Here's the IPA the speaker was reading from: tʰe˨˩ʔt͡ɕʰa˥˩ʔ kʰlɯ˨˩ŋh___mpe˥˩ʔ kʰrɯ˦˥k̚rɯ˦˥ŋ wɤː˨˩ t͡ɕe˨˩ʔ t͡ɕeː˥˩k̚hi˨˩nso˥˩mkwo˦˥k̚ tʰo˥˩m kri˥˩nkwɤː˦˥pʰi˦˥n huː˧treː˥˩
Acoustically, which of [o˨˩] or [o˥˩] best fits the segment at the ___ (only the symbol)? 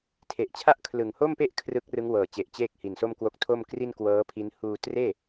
o˥˩